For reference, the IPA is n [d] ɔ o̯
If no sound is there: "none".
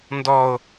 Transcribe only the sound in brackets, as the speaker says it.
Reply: d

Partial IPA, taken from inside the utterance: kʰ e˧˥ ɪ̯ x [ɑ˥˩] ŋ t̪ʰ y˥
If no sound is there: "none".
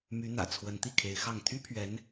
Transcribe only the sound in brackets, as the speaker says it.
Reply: ɑ˥˩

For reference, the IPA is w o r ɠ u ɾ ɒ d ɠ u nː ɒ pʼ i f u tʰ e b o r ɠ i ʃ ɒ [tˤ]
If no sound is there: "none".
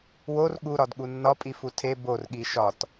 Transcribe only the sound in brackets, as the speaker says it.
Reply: t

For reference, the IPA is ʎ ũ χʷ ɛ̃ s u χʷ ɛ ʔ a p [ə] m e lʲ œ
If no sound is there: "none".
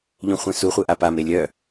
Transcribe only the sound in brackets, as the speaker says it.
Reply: a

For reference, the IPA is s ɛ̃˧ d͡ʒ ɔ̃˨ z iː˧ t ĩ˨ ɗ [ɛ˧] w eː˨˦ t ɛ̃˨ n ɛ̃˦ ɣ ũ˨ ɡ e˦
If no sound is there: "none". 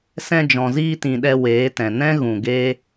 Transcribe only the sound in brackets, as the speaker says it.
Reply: ɛ˧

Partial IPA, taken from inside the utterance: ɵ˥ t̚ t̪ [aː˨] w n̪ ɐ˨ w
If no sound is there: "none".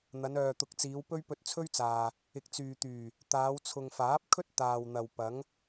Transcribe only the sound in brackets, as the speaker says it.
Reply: aː˨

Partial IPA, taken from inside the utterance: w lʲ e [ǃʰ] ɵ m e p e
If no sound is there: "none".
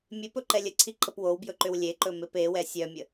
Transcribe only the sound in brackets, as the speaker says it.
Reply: ǃ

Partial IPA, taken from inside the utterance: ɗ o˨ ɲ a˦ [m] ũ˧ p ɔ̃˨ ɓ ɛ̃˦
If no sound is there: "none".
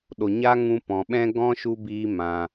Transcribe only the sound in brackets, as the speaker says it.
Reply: ŋ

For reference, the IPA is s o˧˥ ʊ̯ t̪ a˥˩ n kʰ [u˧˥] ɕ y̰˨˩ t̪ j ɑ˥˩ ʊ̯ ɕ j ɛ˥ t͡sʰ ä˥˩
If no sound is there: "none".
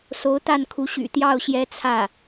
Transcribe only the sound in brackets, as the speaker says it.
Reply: u˧˥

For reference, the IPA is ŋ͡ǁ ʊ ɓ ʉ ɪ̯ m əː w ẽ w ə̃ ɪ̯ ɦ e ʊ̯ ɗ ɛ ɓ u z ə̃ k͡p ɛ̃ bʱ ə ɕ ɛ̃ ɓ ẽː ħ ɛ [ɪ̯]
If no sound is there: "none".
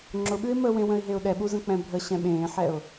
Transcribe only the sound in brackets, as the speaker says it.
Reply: ʊ̯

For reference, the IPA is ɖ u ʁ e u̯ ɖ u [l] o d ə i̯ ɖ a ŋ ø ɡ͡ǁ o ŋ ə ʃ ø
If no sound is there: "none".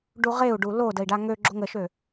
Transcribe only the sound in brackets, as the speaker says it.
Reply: l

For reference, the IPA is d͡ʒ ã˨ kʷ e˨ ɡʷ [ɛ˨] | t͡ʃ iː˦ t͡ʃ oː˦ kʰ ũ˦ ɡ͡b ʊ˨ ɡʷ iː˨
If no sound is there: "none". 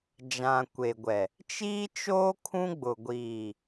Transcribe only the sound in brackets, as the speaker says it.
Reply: ɛ˨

